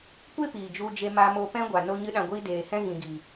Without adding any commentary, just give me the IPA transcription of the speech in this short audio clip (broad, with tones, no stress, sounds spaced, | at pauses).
kʷ e˦ p iː˨ d͡ʒ u˧ d͡ʒ e˧ m a˧ m o˧ p ɛ̃˦ ɡʷ a˨ n o˧ ɲ ɨ˧ ɗ ã˨ ɡʷ iː˧ d eː˨ h ɛ̃˦ ɣ ĩ˨ ɡ iː˨